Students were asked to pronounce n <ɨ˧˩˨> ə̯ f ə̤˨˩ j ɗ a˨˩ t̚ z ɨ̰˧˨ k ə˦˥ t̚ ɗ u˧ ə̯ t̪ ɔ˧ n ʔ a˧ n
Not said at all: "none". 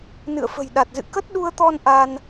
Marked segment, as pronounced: ɨ̰˧˨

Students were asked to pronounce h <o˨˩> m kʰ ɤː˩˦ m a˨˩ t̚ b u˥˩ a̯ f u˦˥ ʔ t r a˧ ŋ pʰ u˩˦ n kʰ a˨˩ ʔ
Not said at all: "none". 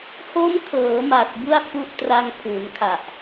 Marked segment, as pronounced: o˦˥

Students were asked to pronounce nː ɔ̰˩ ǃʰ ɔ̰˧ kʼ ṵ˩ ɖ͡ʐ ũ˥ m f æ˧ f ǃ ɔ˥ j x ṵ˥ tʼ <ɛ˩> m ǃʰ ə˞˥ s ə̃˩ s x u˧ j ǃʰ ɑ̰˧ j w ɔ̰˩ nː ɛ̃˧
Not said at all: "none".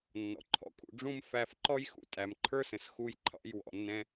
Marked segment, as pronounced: æ˩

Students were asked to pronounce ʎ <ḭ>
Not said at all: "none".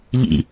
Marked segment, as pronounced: ḭ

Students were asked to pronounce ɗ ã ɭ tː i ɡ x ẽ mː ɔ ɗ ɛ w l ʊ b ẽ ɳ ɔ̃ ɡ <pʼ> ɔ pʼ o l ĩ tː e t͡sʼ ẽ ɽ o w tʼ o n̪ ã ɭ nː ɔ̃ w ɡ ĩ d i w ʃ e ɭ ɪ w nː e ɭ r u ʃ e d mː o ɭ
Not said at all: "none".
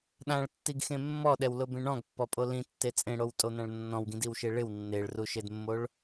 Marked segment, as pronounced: pː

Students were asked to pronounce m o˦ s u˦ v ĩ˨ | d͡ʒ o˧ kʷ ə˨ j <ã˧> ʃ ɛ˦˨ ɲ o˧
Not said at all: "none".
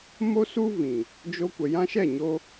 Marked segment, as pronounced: ã˧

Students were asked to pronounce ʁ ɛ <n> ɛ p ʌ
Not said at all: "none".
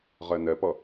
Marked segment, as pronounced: n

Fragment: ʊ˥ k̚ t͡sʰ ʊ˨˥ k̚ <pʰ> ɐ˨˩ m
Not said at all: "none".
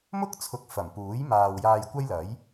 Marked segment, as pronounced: f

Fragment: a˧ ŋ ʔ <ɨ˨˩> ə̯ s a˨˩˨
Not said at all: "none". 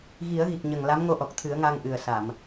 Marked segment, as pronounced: ɨ˨˩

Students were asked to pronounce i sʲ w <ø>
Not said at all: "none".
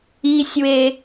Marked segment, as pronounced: e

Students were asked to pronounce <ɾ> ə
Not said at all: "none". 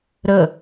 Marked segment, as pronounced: ɾ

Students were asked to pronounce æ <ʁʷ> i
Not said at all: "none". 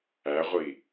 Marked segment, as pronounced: ʁʷ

